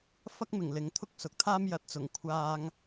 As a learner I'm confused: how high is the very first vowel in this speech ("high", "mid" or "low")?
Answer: low